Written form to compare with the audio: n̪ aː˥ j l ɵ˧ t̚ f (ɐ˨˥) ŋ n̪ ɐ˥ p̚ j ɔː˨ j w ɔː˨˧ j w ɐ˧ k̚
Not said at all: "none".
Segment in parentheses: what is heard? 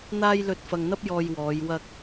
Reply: ɐ˨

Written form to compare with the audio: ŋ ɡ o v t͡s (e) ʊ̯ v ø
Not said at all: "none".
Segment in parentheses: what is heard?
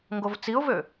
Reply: i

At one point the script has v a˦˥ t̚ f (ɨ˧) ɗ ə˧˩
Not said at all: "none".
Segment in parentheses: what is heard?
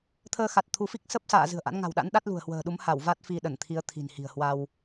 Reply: i˧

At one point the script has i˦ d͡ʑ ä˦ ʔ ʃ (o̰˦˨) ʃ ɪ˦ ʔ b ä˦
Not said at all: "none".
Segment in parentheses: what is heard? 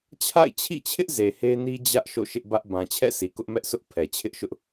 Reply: o̰˦˨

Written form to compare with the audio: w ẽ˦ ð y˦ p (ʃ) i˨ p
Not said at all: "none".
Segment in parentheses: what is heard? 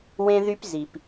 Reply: z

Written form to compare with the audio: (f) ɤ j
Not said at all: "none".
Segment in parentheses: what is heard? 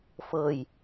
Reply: f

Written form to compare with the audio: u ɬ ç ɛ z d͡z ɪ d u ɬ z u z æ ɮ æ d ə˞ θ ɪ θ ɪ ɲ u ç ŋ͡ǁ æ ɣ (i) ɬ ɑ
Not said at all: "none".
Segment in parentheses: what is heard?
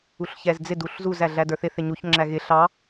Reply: ɪ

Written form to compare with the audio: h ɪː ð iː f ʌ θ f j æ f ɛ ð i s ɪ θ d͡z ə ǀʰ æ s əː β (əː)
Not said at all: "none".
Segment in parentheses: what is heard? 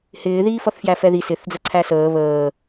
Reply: əː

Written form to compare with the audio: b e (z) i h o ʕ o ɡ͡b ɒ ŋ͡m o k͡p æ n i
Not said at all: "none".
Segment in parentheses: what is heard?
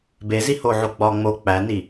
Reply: z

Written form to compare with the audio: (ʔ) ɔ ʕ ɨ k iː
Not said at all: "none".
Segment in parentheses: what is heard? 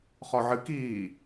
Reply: χ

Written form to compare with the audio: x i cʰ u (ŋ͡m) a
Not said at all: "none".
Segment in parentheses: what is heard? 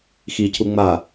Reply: ŋ͡m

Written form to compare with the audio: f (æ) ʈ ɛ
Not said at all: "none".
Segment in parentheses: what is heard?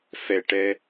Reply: ɛ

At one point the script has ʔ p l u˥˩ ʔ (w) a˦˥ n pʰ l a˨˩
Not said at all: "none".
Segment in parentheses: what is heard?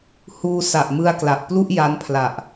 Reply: j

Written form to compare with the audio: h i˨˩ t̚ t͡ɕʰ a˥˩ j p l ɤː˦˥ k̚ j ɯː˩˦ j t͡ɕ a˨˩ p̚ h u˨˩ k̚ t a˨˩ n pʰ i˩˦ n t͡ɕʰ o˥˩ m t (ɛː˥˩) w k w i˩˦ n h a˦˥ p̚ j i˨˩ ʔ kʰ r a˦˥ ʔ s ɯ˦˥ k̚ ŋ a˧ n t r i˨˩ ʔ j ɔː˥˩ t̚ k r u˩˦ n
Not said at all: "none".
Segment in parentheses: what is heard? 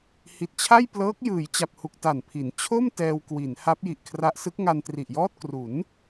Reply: ɛː˧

